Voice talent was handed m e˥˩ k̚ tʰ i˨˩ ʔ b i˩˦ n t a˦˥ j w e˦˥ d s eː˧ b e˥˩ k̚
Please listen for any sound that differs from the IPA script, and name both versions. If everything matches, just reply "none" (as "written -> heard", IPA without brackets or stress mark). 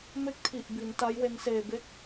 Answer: d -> n